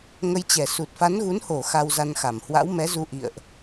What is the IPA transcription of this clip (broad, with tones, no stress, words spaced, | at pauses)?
ŋə˧jt͡ɕɛ˨˩ su˨˩t̚fa˨˦nɣu˨˦nho˧˩ xa˧wza˧nxa˧˩m hwa̰˧˥wmɛ˨˦zu˧ ʔḭ˧˨ə̯ʔ